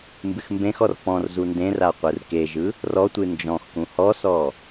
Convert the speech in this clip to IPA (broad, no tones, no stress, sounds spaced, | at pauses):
m b ɨ x m b ẽ x ɔ r p ɔ̃ r z u n d ẽ r a qʷ ɯ r k e ʒ ɯ | r ɔ tʷ ɨ n d͡ʒ ɔ̃ x k ũ h ɔ s ɔ